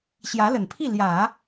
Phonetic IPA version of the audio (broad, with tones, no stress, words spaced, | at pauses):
ɕjä˧˥lə˨˩npʰi˥˩ ljä˨˩˦